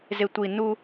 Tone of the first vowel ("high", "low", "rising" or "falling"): low